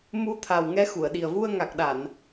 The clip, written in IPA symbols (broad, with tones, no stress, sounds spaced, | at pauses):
m u˧ t̪ʰ a˨˩ w ŋ ɛ˧˥ x u˨˩˨ ə̯ ɗ i˨˩ ə̯ v u˧ ə̯ ŋ a˨˩ k̚ ɗ a˨˩˨ n